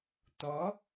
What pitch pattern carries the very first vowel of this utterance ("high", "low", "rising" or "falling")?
rising